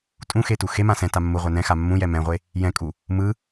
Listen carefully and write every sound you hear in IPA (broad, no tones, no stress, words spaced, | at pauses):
tʼũxetu xemã sɛ̃ta mːuʁʷɛ nɛ̃xa mːũjɛ mɛ̃ʁʷe | jɛ̃kʼu | mɯ